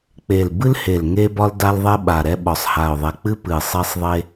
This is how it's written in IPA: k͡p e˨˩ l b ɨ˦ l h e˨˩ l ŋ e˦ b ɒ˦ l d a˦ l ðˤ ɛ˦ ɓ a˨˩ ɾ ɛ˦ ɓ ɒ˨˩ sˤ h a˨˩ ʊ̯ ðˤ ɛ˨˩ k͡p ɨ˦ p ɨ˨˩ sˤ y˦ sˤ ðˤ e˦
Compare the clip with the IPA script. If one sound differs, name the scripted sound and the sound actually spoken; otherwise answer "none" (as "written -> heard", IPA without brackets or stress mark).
y˦ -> e˦